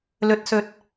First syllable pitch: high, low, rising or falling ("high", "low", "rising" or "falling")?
low